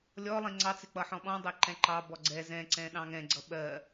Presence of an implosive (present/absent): present